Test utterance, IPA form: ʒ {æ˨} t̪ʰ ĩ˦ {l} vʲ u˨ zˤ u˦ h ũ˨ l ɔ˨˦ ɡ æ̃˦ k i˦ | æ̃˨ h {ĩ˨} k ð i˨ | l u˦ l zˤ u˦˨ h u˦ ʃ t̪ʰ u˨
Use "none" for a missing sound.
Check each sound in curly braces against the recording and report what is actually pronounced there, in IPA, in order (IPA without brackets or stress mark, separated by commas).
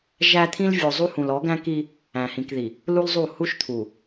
æ˦, l, ĩ˨